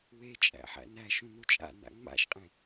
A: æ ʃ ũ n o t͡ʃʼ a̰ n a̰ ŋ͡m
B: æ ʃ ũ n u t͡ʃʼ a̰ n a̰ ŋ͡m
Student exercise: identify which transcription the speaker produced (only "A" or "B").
B